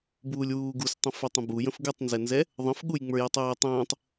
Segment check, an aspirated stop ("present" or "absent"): absent